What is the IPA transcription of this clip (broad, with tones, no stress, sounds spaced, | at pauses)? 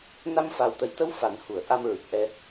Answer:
n a˧ m f aː˨˩ w t̪ ə˨˩˦ j t̪ ə˧˥ w f a˨˩˦ n h u˨˩˨ ə̯ ʔ a˧ m ɹ ɨ˨˩ k̚ ʔ ɛ˧